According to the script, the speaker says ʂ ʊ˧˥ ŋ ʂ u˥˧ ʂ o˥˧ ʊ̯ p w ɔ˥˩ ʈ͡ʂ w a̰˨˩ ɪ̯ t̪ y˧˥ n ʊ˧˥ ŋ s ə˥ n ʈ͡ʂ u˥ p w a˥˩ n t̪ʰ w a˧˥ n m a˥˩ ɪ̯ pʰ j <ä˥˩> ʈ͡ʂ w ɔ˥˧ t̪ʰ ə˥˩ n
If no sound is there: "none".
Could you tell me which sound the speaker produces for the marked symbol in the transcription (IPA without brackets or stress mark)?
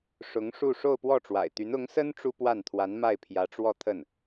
ä˧˥